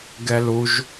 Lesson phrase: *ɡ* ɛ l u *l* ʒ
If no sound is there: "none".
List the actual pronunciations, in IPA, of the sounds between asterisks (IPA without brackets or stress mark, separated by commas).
ɡ, none